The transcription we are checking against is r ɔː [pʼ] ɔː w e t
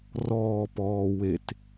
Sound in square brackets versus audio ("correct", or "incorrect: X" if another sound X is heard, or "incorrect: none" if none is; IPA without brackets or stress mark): incorrect: p